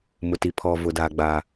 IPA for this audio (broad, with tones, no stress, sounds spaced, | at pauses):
m ʊ˨ t i˨ pʰ ɔ˨ v ʊ˨ d aː˦ ɡ͡b a˦